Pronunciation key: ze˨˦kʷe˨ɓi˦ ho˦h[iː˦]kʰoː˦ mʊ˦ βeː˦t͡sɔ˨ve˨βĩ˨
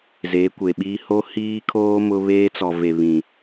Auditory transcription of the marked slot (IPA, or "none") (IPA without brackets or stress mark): iː˦